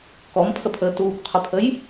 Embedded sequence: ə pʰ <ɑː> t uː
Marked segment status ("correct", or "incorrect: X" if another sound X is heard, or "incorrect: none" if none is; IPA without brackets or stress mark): incorrect: əː